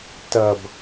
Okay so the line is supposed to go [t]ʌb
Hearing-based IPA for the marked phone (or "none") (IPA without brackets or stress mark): t